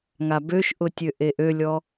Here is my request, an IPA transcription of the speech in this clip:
ŋabøʃʔʊtʲø ʔeʔølʲɔ

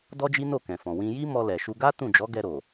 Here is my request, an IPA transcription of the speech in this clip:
dɔ˦d͡ʒi˦ no˦˨kɛ̃˨fɔ̃˨ wĩ˧ji˦mɔ˧lɛ˨ ʃu˧ɡa˦ tũ˦˨d͡ʒɔ˨˦ɡɛ˧ɾo˨

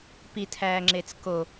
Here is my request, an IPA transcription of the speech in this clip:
pitʰæːŋ͡ǁet͡s ko

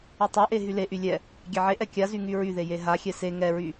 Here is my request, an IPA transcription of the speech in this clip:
ytˤeʔe ɦyleʔy lʲɛ | ɡʲɛʕeʔɛ kʲazy ŋyɹyðe jeɦaxʲɛ se ŋɛɹy

